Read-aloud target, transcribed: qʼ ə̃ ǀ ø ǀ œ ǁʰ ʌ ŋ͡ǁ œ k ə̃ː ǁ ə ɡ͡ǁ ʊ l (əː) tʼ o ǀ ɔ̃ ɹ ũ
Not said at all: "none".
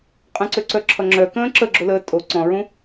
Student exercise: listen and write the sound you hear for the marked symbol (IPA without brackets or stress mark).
əː